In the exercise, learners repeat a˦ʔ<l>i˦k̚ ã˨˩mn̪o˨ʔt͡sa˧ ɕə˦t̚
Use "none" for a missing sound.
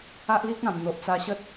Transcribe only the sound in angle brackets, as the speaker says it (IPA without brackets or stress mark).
l